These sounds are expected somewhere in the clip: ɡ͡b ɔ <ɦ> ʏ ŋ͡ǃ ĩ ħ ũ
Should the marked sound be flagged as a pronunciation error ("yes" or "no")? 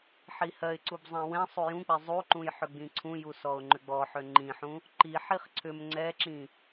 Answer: yes